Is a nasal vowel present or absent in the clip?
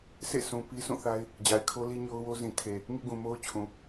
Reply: present